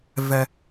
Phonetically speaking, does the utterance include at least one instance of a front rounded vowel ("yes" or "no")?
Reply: no